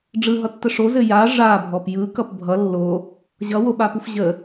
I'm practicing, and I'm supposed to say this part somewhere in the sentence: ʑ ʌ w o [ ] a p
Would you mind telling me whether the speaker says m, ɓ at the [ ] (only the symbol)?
ɓ